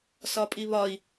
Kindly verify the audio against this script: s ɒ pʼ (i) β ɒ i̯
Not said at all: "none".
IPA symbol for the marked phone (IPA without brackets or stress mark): i